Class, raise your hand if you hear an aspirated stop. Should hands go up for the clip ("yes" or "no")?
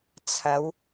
yes